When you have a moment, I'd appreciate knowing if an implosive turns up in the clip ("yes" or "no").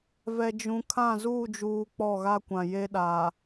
yes